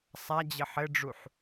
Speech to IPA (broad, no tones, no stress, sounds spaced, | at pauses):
sˤ a d͡ʑ ə ħ ɘ ɖ͡ʐ u ħ